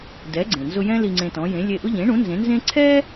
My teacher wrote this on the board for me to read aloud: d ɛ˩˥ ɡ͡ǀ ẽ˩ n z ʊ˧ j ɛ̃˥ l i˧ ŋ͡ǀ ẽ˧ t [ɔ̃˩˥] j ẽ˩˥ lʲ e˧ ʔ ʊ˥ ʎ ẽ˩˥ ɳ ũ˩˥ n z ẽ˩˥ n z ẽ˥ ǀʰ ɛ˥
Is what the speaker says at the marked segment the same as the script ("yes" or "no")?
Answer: yes